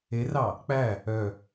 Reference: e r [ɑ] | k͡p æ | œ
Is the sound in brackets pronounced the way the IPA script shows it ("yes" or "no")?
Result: yes